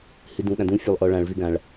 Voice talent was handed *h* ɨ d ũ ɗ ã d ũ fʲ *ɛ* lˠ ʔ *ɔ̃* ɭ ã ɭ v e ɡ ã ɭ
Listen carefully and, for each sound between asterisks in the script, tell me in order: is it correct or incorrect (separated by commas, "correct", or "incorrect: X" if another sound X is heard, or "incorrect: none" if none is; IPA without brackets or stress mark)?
correct, incorrect: ɘ, incorrect: ɔ